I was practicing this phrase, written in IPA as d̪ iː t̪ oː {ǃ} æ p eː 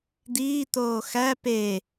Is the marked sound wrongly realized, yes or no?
yes